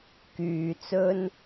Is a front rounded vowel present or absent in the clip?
present